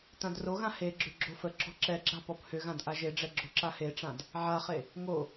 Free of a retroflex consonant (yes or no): no